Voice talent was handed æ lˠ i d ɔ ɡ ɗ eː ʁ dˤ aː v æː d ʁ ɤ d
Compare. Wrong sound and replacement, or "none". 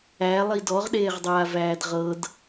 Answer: ɡ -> ʁ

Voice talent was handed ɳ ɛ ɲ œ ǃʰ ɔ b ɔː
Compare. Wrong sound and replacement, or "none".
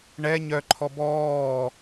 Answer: none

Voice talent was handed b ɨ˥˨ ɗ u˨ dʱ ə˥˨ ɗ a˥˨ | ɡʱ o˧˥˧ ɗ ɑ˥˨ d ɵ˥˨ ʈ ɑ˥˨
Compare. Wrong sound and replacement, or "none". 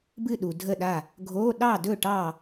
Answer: none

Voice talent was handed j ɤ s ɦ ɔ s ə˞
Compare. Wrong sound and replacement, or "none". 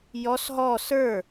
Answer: ɤ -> ɔ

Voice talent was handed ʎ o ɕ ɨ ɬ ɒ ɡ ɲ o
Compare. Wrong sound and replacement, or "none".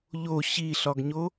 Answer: ɨ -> i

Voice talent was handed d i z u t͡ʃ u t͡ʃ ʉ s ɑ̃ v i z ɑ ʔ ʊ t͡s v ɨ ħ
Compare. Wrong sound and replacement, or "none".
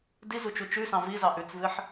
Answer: ʊ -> ʉ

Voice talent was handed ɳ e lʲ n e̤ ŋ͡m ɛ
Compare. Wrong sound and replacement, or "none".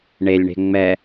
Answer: n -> ɳ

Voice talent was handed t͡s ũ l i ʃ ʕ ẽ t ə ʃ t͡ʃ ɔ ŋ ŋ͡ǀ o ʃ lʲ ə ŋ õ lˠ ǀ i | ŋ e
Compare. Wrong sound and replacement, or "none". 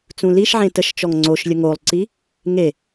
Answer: õ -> o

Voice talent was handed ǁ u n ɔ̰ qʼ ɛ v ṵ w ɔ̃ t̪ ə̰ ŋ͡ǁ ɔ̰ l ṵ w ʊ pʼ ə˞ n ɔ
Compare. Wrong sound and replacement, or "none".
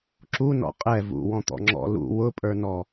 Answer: ə̰ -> ɔ̰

